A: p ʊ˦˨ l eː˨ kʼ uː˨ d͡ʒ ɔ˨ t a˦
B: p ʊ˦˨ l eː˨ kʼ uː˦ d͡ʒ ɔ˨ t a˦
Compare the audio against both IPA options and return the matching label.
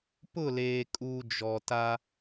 A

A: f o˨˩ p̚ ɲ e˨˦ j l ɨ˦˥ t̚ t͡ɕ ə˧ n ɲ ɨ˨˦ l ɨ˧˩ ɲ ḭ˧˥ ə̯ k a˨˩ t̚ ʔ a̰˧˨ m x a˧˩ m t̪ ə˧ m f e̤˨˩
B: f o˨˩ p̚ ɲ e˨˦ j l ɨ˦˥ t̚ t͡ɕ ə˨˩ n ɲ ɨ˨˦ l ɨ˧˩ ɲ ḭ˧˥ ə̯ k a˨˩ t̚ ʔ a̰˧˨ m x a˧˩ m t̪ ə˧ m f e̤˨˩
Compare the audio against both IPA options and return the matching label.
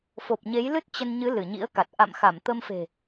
A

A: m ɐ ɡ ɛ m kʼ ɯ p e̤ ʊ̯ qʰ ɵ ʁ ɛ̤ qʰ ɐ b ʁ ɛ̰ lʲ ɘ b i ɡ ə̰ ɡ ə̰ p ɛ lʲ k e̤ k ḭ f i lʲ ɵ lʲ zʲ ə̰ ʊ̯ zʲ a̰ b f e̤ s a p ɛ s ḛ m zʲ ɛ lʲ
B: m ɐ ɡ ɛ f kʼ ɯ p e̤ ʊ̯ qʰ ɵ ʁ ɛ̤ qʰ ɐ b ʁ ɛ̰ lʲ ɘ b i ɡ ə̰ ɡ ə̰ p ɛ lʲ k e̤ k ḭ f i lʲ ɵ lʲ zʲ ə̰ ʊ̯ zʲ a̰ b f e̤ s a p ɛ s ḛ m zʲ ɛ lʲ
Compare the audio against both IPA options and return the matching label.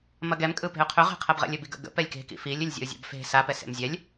A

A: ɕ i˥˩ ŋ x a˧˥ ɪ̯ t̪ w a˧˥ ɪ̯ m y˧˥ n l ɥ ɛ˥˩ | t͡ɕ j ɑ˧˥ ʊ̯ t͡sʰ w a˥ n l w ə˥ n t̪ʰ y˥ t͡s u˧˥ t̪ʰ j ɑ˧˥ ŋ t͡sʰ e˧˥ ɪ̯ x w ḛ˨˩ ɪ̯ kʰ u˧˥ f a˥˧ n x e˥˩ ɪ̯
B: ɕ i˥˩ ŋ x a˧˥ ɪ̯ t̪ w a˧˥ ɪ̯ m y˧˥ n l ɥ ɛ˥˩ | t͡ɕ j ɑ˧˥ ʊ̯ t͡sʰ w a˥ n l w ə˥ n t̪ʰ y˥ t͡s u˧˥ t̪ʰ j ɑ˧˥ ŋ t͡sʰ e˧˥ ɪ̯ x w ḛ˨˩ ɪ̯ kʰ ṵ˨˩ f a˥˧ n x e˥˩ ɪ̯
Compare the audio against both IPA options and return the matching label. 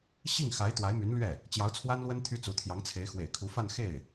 A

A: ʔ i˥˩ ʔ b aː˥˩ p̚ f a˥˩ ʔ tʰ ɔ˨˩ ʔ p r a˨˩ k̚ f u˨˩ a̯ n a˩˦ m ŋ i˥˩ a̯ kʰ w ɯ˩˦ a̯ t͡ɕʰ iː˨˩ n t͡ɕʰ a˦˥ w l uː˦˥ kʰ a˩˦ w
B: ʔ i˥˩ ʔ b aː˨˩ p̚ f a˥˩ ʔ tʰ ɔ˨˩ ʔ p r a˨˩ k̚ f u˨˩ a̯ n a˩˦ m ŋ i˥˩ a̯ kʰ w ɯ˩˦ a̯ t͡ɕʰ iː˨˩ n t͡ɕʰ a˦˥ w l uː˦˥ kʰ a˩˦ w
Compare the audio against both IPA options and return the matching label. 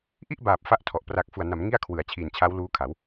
B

